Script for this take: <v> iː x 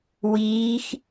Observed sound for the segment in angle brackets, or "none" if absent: w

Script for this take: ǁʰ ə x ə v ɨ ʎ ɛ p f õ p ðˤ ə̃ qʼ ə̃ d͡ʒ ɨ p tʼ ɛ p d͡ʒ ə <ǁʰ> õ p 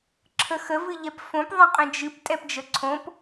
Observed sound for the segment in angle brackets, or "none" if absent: ǀʰ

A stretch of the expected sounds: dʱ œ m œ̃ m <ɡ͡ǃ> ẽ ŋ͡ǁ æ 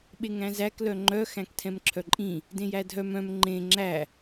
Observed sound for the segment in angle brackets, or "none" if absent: ŋ͡ǃ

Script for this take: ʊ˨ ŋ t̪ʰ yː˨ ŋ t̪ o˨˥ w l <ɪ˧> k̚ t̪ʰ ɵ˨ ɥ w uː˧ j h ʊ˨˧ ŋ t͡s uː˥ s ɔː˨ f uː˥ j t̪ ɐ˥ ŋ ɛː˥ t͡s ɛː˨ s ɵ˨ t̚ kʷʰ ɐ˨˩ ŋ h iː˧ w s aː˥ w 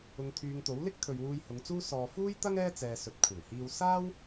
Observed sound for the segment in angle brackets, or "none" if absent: ɪ˥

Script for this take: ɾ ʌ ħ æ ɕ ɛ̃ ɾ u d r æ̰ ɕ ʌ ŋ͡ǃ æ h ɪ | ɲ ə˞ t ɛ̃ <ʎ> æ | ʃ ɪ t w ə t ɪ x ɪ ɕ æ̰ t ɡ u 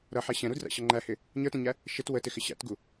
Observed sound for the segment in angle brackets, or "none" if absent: ɲ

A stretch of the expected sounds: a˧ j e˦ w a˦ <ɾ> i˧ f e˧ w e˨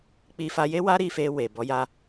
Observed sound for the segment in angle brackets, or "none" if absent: ɾ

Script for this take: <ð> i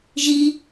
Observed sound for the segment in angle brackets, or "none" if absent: ʒ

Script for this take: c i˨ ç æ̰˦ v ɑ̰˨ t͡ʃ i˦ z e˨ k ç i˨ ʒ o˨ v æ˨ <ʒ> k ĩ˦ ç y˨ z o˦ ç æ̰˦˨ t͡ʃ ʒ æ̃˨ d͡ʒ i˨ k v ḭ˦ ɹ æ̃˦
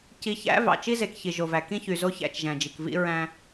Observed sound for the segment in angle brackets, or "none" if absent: none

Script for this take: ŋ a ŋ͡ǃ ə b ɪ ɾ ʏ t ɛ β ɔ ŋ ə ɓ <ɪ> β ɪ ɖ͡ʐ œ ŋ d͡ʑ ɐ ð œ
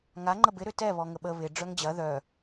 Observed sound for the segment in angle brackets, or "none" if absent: ə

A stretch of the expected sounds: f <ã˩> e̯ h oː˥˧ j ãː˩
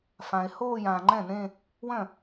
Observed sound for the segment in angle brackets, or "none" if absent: ã˩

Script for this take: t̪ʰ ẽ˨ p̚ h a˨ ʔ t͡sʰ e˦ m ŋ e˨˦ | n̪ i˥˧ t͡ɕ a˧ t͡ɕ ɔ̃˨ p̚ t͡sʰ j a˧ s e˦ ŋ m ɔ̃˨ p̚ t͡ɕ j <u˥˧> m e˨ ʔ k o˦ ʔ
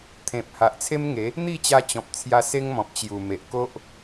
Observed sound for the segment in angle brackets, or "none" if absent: u˨˩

